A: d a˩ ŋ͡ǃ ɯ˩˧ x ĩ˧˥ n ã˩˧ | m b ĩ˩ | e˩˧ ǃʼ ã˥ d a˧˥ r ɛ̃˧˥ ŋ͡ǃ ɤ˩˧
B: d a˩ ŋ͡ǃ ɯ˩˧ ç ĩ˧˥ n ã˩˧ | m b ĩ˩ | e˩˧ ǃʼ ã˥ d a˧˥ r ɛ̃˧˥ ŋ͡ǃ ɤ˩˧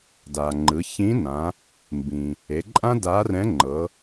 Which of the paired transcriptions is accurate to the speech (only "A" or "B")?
B